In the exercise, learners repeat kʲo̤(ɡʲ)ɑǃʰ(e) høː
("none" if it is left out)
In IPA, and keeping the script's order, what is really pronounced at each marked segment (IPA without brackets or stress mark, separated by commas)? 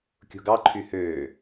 ɡ, y